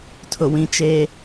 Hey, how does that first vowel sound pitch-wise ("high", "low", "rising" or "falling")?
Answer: low